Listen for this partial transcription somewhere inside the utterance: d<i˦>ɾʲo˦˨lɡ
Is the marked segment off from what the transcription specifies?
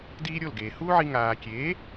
yes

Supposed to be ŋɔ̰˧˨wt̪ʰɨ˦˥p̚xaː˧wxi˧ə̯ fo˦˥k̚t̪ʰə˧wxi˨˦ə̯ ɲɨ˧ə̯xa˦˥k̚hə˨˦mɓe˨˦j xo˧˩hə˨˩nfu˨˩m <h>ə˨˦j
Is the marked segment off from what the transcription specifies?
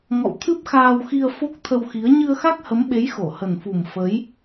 yes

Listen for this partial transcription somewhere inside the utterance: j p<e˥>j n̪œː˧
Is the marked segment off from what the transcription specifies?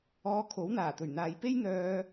no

